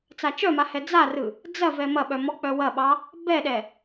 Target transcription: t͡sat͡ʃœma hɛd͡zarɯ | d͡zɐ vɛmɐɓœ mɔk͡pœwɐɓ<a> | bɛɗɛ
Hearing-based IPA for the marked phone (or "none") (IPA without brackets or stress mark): ɑ